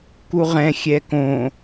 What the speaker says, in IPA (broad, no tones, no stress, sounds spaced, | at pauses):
k u ʁ ɛ̃ xʲ ɛ k õ